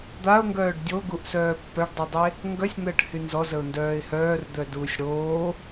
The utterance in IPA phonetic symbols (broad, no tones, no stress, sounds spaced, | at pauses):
d̪ a ʊ̯ ŋ ɡ œː ɖ dʲ o ɡ u ʔ s œː pː œ ɖ dˤ y dˤ e | ŋ ɡ œ sʲ n̪ əː ʈ h y n z ɔ z ə ʊ̯ n d œː ɪ̯ h œː r d̪ œ d uː sʲ ɽ oː